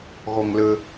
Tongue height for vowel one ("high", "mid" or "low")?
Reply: mid